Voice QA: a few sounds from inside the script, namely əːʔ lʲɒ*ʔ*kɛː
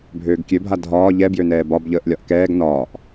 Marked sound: correct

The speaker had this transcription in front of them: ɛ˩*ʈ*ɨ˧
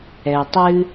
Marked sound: incorrect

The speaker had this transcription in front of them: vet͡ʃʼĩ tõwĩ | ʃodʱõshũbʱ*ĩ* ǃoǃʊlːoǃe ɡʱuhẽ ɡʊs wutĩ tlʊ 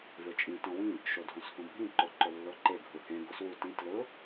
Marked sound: correct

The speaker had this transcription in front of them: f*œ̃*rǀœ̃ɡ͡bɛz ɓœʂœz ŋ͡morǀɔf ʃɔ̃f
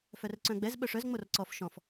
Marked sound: incorrect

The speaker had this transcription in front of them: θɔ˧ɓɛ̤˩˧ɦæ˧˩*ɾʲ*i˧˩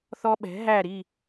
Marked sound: incorrect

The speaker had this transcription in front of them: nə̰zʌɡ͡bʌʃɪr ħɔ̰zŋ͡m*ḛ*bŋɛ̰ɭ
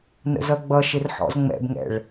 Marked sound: incorrect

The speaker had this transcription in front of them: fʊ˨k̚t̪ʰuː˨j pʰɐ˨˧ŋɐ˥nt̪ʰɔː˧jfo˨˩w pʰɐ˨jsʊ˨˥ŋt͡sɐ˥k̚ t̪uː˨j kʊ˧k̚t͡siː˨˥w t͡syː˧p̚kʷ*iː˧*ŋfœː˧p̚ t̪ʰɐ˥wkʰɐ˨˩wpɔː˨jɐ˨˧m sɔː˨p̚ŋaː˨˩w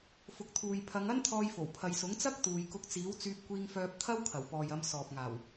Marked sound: correct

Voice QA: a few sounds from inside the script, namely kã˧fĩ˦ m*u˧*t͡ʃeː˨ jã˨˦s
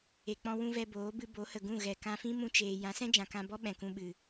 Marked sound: incorrect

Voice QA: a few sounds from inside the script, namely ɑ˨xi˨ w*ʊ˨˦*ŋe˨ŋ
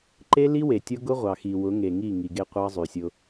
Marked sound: correct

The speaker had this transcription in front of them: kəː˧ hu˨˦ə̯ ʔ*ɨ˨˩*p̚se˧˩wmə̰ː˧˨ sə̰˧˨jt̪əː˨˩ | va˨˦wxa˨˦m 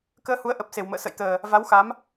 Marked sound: incorrect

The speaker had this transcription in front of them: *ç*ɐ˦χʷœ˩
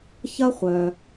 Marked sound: correct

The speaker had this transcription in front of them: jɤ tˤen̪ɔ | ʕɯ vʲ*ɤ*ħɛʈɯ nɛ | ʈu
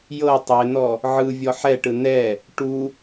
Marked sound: incorrect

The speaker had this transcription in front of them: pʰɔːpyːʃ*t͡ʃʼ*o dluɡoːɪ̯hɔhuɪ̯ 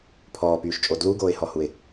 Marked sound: correct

